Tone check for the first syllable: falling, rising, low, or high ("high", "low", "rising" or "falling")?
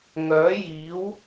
rising